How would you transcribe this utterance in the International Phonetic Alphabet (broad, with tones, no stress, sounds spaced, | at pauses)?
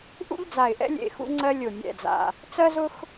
ʔ ṵ˥ ʎ d͡z a˨˩ ɪ̯ ʔ ɛ̰˥ lʲ ḛ˨˩ x ṵ˥ ŋ͡ǀ ɜ˥ lʲ ʊ˨˩ mʲ ɛ̰˨˩ d͡z a̰˨˩ | t͡s ɜ˥ z ʊ˥ x